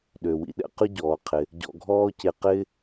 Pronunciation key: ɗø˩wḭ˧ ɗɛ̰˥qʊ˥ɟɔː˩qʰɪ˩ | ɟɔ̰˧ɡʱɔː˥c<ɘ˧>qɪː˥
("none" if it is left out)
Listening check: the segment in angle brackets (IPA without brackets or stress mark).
e˧